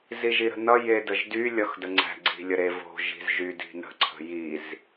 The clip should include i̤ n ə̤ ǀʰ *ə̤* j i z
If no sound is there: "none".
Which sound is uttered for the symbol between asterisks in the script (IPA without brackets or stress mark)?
ə̤